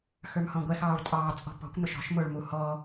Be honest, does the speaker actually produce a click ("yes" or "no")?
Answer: no